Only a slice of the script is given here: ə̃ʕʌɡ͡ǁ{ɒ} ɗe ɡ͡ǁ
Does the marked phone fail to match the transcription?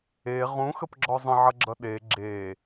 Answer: yes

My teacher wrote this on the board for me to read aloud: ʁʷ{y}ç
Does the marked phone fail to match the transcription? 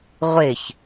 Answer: yes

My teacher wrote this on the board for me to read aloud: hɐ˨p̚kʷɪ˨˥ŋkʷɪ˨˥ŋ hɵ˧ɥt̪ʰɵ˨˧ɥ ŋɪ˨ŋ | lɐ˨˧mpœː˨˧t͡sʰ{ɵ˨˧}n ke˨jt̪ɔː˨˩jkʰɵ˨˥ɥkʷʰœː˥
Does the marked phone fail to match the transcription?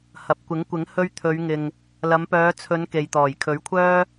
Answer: no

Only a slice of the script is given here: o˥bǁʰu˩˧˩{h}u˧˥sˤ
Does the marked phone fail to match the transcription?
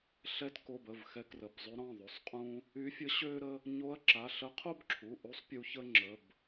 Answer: yes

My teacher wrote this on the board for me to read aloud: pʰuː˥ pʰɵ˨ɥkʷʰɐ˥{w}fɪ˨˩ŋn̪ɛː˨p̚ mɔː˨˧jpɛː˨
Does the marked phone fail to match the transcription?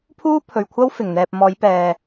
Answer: no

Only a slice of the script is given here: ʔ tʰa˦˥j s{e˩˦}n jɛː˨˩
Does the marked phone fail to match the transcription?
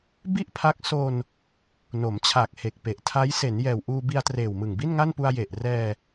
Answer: no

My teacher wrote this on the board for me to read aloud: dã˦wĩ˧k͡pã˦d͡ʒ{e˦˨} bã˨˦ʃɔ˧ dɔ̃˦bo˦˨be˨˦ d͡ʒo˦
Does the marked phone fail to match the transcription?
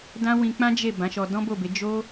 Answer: no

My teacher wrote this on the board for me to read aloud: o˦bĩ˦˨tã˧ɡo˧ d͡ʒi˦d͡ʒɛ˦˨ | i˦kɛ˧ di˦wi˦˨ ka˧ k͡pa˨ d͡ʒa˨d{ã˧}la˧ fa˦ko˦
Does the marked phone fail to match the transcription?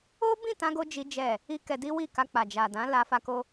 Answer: yes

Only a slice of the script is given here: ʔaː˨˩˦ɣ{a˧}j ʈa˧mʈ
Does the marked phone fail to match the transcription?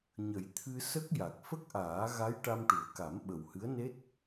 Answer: yes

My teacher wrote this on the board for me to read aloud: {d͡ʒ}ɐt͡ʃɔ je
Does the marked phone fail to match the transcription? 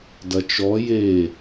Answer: yes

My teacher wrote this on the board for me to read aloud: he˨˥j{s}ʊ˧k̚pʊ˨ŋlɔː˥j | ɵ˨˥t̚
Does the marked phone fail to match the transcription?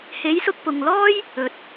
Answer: no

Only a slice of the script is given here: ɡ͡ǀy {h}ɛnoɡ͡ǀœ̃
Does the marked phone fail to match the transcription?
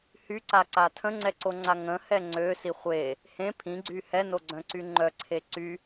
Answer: no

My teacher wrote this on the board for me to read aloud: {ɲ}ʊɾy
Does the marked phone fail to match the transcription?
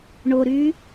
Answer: yes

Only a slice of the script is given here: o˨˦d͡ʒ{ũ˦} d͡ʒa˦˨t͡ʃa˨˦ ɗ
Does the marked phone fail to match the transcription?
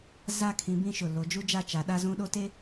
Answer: yes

